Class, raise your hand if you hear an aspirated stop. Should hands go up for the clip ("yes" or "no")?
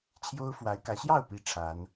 yes